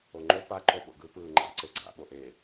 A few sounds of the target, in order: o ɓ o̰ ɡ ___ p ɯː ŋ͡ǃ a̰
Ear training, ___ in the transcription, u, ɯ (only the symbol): ɯ